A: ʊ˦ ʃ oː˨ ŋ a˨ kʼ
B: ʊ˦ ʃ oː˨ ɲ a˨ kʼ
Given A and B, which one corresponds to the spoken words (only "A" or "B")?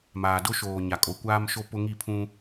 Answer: B